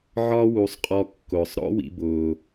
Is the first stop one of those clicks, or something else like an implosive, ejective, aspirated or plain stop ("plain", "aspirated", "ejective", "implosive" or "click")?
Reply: ejective